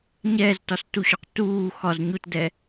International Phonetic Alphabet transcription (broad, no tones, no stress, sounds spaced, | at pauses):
ɲ ɛː z t ɒ s t u ɕ ɒ q t uː x ɒ z ɲ u t d ɛ